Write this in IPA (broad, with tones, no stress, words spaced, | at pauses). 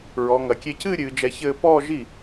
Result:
ɹɔ˩˧ŋɐ˩˧ kʲe˧cɨː˥˧ ɾʲɨː˩˧d͡ʒɛ˧çɘː˥˧ pɔː˥˧ʒi˥˩